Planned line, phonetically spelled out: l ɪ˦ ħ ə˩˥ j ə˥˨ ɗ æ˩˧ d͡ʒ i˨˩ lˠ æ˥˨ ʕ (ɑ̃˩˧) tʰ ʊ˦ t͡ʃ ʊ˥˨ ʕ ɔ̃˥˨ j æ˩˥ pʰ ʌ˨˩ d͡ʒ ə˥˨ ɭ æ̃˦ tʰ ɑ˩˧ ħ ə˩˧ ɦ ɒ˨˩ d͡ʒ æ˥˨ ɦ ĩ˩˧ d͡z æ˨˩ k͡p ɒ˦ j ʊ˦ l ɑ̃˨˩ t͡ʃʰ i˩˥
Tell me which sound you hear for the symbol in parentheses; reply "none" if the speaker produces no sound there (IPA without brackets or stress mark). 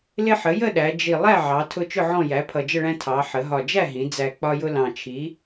ɑ˩˧